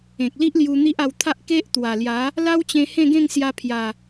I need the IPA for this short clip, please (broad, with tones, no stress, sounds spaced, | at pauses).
ẽ˨ k̚ l i˦ ʔ l j u˧ n̪ i˦ ʔ a˧ w t̪ʰ a˦ ʔ k e˦ ʔ t̪ w a˨˩ l j a˨˦ | l a˦ w t͡ɕ ẽ˧ h ẽ˥˧ ɡ ẽ˥˧ ŋ s j a˧ pʰ j a˨˩